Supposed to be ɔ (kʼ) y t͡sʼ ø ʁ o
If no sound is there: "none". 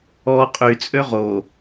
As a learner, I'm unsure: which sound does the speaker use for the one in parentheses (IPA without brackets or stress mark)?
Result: qʼ